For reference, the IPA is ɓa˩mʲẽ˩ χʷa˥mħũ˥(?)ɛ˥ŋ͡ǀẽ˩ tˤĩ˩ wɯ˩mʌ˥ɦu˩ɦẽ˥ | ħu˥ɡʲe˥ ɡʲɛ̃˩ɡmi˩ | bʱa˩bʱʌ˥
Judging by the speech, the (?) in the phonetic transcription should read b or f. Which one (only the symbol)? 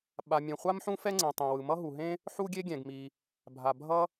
f